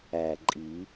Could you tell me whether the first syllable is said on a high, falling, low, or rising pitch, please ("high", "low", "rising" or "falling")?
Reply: low